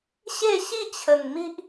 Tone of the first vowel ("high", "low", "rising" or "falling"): falling